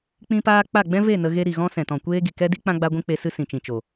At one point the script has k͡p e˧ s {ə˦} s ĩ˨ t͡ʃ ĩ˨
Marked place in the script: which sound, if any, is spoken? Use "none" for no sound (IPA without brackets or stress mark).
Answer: ɨ˦